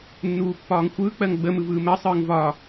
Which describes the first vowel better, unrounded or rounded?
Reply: rounded